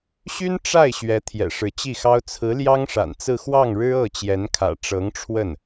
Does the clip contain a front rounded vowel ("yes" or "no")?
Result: yes